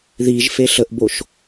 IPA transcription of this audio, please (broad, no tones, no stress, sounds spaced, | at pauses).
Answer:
ð i ʒ f e ɬ ə ʔ b o ʃ